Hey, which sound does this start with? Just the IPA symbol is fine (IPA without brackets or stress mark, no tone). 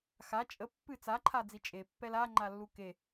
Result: x